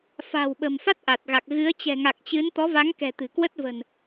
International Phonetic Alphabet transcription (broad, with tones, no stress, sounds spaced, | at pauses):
f a̤˨˩ w ɓ ə̤˨˩ m f a˦˥ t̚ ʔ a˨˩ t̚ ɣ a˨˩ k̚ ɣ ɨ˨˦ ə̯ t͡ɕ ɛ̤˨˩ ŋ a˨˩ k̚ t͡ɕ ɨ˨˦ n t̪ ɔ˨˦ v a˨˦ ŋ k ɛ̤˨˩ t̪ ɨ̤˨˩ k w ə˦˥ t̚ v ə̤˨˩ n